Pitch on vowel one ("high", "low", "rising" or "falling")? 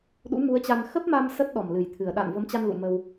rising